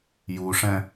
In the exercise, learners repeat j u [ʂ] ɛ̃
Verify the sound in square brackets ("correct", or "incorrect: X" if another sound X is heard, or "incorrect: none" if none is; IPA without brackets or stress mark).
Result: correct